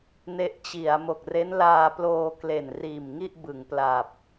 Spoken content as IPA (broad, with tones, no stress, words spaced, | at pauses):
ne˦˥ʔt͡ɕi˩˦a̯ mo˨˩k̚re˦˥nlaː˧ploː˧ kle˨˩nriː˨˩mŋi˥˩ʔ bɯ˩˦ŋpla˨˩p̚